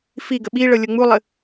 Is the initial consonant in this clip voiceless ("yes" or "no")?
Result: yes